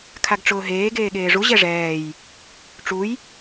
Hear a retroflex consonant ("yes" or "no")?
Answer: yes